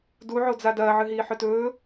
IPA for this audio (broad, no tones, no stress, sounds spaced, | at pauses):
d u ʕ o d͡z a d ɐː ʕ ɨ ɦ iː ħ ɵ t ɵː